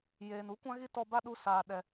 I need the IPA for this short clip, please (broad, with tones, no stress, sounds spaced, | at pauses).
j eː˨ n u˦ kʷ ã˦ ɣ i˦ t ɔ˧ b a˦ ɗ u˧ s aː˨ ɗ ɛ˨